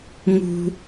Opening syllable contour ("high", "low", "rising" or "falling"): high